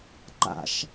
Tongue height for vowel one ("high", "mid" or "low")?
low